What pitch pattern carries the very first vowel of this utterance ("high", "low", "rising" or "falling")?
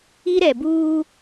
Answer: high